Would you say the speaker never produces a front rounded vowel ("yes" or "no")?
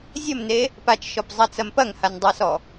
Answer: yes